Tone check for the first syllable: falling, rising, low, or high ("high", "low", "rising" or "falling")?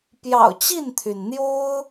low